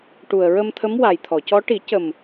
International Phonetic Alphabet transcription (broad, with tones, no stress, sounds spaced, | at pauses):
ʈ u˨˩ ə̯ ɹ ə˧ m t̪ʰ ə˧˥ m w a˨˩ j t̪ʰ ɔ˨˩˨ c ɔ˧˥ ʈ i˨˩˦ c ə˨˩ m